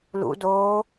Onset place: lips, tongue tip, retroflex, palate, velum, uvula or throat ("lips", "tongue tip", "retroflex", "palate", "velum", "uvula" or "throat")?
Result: tongue tip